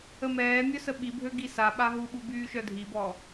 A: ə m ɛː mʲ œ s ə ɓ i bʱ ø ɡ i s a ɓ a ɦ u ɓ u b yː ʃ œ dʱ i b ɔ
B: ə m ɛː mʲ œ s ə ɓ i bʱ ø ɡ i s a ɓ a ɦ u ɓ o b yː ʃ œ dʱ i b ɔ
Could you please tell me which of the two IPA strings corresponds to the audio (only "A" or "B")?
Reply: A